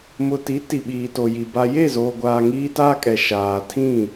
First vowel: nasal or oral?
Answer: oral